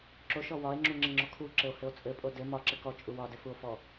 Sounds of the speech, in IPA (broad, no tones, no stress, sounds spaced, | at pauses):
ǁ o ʃ ɔ w ɒ e̯ ŋ͡ǁ u ŋ͡ǁ ɘ ŋ͡ǁ ɔ kʰ u ǁ ɘ o̯ h ɘ o̯ t͡sʼ ɘ pʼ o d ɘ m ɒ ǁ ɘ k ɔ t͡ʃʼ u w ɒ d ɘ f u o̯ f ɔ